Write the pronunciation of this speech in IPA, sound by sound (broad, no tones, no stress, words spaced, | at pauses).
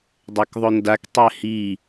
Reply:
dˤɛkðˤondak tˤɛhi